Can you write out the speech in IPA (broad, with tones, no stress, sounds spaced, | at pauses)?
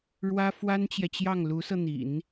ɻ w ä˥ f w a˥ n t͡ɕ j ɛ˨ t͡ɕ j ɑ˥˩ ŋ l u˧˥ s ɤ˧ n̪ ḭ˨˩˦ n